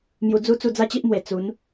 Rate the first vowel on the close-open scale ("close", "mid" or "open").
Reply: close